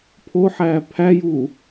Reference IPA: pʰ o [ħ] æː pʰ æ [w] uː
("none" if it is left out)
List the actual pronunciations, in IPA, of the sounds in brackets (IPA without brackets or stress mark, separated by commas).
ħ, j